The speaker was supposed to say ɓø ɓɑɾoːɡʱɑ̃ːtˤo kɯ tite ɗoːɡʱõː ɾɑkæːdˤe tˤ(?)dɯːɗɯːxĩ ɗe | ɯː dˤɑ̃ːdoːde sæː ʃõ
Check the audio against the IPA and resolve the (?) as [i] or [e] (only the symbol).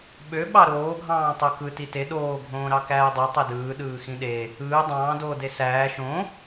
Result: e